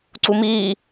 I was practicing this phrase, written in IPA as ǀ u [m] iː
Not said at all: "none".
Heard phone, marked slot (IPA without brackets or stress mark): m